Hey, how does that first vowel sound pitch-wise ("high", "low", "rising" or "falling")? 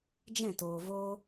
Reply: falling